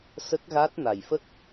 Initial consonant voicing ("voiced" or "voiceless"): voiceless